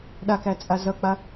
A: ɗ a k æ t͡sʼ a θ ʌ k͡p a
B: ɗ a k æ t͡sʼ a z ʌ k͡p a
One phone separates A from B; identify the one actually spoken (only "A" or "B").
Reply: B